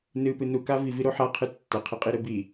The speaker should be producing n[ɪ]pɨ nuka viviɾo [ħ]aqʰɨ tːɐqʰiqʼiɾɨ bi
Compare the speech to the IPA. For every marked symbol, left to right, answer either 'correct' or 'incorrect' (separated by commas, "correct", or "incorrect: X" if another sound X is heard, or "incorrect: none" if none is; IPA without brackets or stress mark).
incorrect: ɨ, correct